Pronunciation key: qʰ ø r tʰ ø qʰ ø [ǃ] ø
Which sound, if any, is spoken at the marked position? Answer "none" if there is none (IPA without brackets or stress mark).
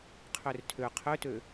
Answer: t